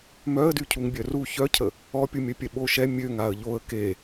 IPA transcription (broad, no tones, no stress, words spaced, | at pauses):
mœə̯dy cʰuŋbʲœru çœcʰə | ɔpʲumʲœpʲɛ ɓoʃɛ mʲøŋ aə̯ʎoə̯ ke